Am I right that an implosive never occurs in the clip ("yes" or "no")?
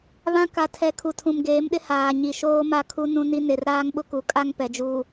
no